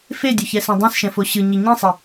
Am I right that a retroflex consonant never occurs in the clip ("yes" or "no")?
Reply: yes